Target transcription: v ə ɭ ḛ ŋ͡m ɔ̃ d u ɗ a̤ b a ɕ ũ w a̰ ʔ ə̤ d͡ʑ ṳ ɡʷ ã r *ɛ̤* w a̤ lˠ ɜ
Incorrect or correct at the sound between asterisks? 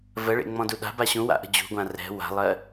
correct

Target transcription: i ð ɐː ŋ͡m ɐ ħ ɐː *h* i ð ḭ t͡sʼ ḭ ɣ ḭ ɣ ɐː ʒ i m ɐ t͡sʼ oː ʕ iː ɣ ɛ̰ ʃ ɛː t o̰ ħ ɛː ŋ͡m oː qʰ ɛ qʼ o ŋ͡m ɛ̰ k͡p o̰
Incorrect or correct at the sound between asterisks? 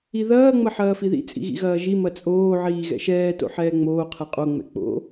incorrect: f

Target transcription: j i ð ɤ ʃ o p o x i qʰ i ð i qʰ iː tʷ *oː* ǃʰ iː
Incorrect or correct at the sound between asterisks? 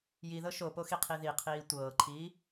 incorrect: ɤː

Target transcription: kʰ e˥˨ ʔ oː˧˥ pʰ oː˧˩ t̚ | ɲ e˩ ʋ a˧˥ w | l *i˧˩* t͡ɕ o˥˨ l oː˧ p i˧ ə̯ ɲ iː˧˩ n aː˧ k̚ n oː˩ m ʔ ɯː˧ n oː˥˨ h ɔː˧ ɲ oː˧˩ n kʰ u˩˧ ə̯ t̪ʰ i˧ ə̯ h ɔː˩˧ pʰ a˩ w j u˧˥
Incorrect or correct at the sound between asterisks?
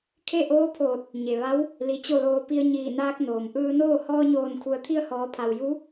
correct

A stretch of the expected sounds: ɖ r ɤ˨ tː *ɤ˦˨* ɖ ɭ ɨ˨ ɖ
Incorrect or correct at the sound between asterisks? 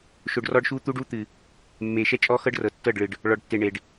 correct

